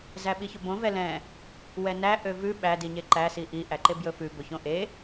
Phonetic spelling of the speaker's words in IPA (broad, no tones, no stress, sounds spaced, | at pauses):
z æ ɓ i ç ɵ b õ v ɛ l ɛ̃ | w ɛ n æ ʔ ø v ʉ ɓ æ d i ɲ e ǃ æ s i ʔ i ʔ æ ǃ e b j ɵ f ʉ b ɵ ç õ ʔ e